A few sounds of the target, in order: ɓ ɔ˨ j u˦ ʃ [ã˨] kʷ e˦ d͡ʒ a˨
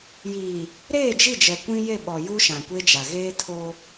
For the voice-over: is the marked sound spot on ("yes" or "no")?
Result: yes